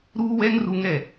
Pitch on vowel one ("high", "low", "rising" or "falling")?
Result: high